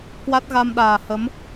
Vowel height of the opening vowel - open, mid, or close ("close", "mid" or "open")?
open